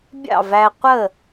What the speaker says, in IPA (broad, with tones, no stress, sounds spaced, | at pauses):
bʲ ɑ̰˥˨ v æ˧ qʷ ə˥˨